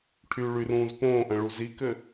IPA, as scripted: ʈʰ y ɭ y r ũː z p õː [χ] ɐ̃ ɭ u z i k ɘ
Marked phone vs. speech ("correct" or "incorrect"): incorrect